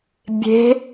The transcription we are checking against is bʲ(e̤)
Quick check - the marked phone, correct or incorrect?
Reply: correct